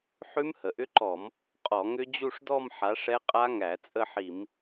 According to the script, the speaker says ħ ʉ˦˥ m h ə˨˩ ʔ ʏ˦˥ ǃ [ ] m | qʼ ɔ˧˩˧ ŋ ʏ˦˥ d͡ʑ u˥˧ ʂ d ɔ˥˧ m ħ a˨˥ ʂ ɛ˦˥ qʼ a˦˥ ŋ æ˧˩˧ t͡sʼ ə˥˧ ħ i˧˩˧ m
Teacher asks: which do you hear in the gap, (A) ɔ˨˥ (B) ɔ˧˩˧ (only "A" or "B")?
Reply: B